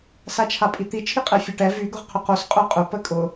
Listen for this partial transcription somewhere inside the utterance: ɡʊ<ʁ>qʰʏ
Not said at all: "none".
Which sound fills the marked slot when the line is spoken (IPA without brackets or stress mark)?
ʁ